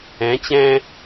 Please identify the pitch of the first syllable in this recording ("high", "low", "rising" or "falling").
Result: rising